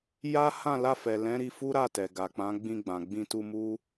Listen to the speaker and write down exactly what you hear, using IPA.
j a˦ h ã˦˨ l a˧ f ɛ˨ l ɛ̃˨˦ ɾ i˧ f u˦ ɾ a˦˨ t ɛ˨ ɡ a˨ k͡p ã˨˦ ɡ͡b ĩ˧ ɡ͡b ã˨ ɡ͡b ĩ˧ t u˧ m u˦

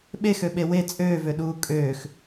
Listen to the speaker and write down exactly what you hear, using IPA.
ɓ e x ø ɓ e w e t͡sʼ øː v ø ɗ uː kʼ øː x

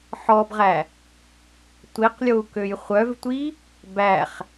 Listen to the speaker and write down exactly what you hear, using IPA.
ħ ɔ b ʁ æ | tʷ i q lʲ o u̯ k ø j χʷ œ v tʷ i | b æ χ

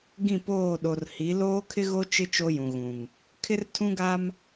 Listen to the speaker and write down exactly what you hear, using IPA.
ɡ ĩ˦˨ p oː˦˨ ɗ o˨ r h i˨˦ l oː˦ kʰ ɪ˦ ɣ o˦ t͡ʃ ɪ˦ t͡ʃ o˦ j ũ˨ ɣ ũ˨ ŋ | kʰ ɪ˦ r tʰ ũ˦ ɡ a˦ m

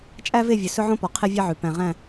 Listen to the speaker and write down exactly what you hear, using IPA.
t͡ʃʼ æ˦ v e˦˨ vʲ ɵ˨ s ɵ˦ ʕ õ˦ p ɔ˨ qʰ e˦ vʲ e˦ ʕ ʉ˨ p æ̃˨ ʁ æ̃˦˨

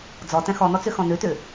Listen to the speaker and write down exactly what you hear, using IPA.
d͡z ɔ t ɛ̃ x ɔ n̪ ɔ t͡s ʉ x ɔ̃ n̪ ʉ t ʉ

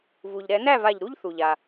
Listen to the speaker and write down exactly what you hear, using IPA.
v u˩ ʎ ɾ ɛ˧˩˧ n æ˥˩ v a˧˩ ʎ ɾ u˥ ʎ θ u˩ ʎ a˩

